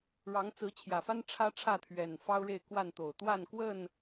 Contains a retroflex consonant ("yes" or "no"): yes